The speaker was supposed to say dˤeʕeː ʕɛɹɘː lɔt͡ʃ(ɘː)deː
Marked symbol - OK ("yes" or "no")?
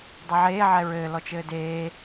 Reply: yes